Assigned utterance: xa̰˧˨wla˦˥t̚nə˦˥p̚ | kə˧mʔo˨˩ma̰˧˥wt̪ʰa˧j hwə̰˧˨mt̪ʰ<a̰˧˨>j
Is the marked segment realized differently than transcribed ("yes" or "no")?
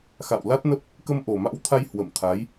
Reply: yes